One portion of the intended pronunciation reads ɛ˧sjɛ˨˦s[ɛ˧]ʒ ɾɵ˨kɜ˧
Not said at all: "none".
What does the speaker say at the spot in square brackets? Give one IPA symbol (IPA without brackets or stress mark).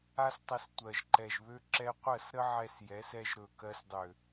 ɛ˧